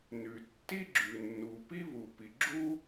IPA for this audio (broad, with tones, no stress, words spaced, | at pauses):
nʉ˩tːi˥ɡ͡ǁʉ˩ nːu˩pi˥βu˩ pi˩ɡ͡ǁu˥